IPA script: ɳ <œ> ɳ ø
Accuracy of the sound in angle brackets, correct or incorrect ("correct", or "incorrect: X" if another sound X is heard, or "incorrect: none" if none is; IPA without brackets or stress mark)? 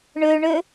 incorrect: ø